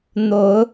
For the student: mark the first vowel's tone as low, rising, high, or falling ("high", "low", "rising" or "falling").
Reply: rising